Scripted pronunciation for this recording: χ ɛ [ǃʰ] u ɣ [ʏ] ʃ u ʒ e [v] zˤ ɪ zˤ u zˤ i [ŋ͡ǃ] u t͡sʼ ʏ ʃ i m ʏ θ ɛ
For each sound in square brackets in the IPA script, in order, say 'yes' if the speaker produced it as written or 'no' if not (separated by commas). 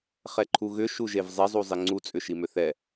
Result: yes, yes, yes, no